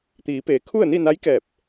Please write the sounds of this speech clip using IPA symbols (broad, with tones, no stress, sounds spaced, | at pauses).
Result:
t̪ iː˩˧ p eː˩˧ kʰ u˥˨ ə̯ n i˥˨ n a˧˥ j k ɛː˧˩ p̚